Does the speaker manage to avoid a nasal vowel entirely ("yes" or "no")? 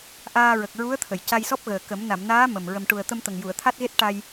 yes